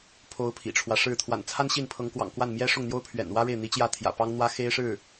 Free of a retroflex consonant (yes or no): no